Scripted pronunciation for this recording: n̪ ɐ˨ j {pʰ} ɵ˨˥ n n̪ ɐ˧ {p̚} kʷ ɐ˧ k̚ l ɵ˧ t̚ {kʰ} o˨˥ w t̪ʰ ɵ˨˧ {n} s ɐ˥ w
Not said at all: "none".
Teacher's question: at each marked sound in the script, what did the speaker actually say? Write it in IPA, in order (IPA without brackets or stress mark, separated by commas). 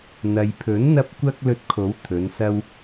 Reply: pʰ, p̚, kʰ, n